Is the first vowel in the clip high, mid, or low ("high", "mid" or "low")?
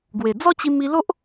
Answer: mid